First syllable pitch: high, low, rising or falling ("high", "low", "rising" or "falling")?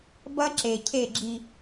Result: high